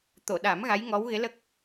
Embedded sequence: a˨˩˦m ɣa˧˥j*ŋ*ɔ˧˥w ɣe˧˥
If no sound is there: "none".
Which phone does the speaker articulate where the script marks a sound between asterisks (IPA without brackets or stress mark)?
ŋ